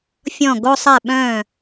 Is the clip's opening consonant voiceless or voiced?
voiceless